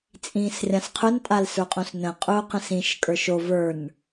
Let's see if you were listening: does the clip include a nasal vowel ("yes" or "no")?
yes